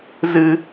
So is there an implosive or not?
no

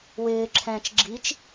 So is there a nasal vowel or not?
yes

